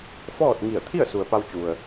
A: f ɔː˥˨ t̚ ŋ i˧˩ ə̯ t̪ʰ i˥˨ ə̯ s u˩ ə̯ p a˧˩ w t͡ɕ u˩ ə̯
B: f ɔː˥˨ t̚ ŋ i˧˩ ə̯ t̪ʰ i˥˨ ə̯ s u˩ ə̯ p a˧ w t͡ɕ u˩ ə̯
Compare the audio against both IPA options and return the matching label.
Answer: B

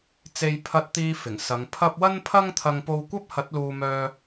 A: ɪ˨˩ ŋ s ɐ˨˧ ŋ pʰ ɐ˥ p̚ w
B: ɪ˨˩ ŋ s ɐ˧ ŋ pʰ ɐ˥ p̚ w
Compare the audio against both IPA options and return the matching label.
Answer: A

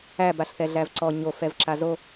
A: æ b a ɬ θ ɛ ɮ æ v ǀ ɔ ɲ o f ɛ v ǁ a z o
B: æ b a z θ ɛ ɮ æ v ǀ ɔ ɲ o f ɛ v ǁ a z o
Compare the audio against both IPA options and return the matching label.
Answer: A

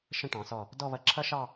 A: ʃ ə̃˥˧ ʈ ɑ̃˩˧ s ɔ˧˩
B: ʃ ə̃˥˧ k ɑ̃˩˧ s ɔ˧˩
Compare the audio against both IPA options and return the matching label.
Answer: A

